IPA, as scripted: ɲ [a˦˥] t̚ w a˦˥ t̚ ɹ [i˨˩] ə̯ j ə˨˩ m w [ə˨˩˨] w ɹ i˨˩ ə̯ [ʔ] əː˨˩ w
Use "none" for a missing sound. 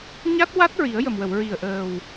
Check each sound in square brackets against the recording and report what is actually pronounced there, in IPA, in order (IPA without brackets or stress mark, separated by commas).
a˦˥, i˨˩˦, ə˨˩˨, ʔ